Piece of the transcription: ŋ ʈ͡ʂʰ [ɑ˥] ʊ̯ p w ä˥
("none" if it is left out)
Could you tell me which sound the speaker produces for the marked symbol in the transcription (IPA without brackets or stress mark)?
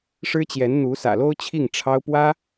ɑ˥